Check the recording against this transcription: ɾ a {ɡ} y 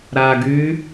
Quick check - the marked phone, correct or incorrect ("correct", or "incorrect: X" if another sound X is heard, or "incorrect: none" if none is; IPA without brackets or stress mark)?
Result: correct